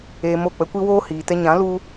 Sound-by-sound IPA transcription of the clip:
eː˧mo˦˨ k͡pə˦kʷi˦woː˦ hiː˨tɛ˧ɲã˨˦ lu˦

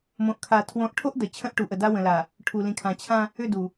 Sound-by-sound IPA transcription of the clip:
mõ˨ʔkʰa˨ tʰwõ˨˦ʔʈʰo˦ʔ də˨ t͡ɕʰə̃˦ʔʈu˨ʔə˨da˦ wə̃˨la˨ | ʈʰu˨lĩ˨kʰã˨ t͡ɕʰã˦ | ʏ˦˨du˨

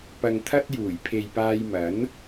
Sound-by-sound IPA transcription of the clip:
pɐ˧ŋt̪ʰɐ˥t̚juː˨˩j pʰe˨jpaː˧jmɐ˨˥n

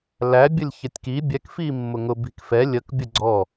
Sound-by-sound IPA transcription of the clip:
læ bʲəlʲçətʲki bʲɛk fimːʊŋʊ bi̤kfɛ lʲək bʲəɡ͡ǀɔ

